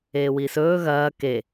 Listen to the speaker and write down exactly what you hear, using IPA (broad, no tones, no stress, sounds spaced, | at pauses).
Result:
eː w i s ɵː ɣ ɐː k e